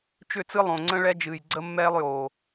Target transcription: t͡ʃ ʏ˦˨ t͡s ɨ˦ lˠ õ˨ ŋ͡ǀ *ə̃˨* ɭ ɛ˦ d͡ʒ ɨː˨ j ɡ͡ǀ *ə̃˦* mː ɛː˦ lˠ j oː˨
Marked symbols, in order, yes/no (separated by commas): no, no